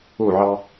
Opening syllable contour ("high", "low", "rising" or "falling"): falling